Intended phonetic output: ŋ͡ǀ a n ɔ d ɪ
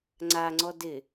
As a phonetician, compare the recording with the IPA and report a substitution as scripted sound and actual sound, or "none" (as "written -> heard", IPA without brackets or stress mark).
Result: n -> ŋ͡ǀ